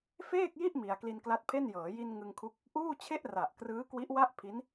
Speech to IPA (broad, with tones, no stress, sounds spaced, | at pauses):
f eː˥˩ k̚ j i˥˩ ʔ m i˧ a̯ k l i˧ n k l a˦˥ t̚ pʰ e˥˩ n j ɤː˩˦ j i˧ n ŋ ɯ˧ ŋ kʰ u˦˥ k̚ | ʔ uː˥˩ t͡ɕʰ e˥˩ ʔ r a˨˩ ʔ k r ɯː˦˥ k w i˦˥ ʔ w a˥˩ ʔ pʰ i˦˥ n